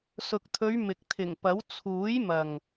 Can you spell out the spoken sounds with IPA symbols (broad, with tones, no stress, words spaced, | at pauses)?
sʊ˨k̚t̪ʰɵ˨˧ɥ mɪ˨k̚ t̪ʰɪ˨˩ŋpɐ˨˥w t͡sʰuː˨˥jmɐ˨ŋ